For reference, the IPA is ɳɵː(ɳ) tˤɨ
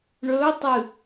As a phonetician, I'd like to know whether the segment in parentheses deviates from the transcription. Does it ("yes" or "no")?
yes